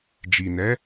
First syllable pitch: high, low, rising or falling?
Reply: low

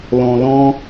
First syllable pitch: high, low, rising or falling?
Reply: low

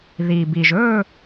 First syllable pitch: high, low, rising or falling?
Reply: low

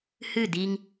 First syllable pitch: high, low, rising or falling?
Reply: falling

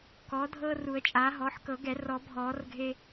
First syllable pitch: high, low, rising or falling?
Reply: rising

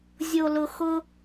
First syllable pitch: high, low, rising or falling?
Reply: low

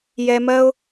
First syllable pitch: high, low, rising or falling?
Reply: high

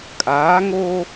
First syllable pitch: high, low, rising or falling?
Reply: rising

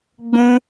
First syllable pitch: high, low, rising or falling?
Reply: high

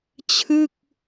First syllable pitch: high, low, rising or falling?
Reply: falling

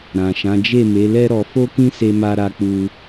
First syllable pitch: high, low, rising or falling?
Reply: low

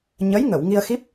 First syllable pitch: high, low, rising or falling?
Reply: rising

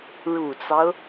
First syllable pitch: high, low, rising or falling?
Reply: low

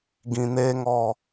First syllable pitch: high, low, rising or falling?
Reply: low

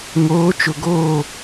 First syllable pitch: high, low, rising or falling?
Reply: rising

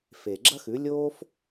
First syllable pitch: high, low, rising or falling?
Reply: low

